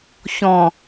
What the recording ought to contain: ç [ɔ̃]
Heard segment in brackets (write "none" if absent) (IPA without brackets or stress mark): ɔ̃